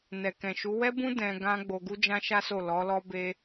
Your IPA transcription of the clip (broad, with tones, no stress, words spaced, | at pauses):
nɛ˨kɛ̃˨ʃu˨˦ wɛ˦bũ˦ dɛ̃˧ ɡã˦ ɡ͡bo˧ ɡu˦d͡ʒã˦ʃa˦so˦˨ lɔ˨˦lɔ˦be˦